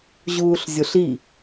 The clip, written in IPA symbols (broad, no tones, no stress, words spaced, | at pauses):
ʑuːɬzʲoɬi